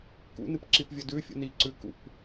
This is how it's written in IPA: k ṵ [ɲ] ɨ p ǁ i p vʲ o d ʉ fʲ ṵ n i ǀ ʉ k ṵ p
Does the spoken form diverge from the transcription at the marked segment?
yes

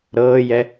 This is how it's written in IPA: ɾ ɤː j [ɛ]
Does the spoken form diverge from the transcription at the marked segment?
no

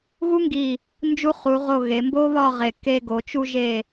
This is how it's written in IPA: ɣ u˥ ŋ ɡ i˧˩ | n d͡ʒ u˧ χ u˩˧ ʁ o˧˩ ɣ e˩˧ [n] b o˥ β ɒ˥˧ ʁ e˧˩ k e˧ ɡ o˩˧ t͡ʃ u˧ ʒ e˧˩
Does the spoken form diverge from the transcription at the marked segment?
yes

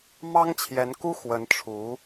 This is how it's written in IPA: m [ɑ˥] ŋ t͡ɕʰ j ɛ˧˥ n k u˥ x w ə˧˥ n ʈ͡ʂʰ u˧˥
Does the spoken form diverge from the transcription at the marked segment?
no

